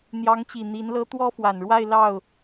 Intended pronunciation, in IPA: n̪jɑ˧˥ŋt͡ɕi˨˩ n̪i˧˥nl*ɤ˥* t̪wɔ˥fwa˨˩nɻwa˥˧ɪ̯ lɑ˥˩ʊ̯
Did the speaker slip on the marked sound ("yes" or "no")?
no